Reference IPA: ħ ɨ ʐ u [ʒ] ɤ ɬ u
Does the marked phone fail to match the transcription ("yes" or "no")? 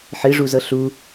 yes